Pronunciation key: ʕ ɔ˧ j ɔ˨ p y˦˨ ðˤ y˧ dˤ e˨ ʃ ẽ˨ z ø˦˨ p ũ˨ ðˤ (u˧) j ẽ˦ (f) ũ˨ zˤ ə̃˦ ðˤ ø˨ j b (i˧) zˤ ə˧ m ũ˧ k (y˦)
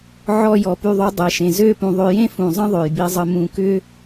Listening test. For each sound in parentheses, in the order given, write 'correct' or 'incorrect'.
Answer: incorrect: ø˧, correct, correct, incorrect: ʏ˦

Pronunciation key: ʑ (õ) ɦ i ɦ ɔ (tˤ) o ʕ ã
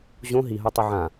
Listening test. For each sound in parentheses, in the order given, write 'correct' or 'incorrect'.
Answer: correct, correct

